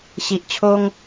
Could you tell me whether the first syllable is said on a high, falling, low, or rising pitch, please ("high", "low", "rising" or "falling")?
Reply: low